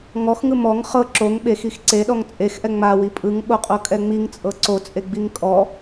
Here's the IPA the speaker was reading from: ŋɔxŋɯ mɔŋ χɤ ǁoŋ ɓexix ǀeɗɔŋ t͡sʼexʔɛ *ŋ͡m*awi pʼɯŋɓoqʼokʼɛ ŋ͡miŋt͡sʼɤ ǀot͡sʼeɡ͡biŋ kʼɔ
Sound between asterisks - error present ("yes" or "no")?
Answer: no